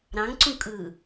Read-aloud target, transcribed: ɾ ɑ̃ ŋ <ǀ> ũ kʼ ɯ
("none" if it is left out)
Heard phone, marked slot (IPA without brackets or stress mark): ǀ